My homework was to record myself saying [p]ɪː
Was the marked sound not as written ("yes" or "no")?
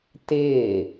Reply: yes